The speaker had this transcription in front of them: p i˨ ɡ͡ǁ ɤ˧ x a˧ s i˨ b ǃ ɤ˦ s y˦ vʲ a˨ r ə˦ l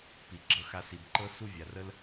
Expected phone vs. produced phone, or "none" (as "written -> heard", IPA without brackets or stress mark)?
y˦ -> u˦